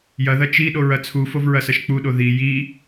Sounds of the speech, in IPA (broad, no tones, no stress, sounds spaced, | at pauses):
j ɐ ð ɐ t͡ʃ i ɗ o ɹ ɐ t͡sʰ u f o v ɹ ɐ s ɐ ʃ k͡p u ɗ o ð i j i